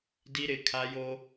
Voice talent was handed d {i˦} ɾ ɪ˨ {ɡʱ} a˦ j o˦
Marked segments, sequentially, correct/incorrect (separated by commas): correct, incorrect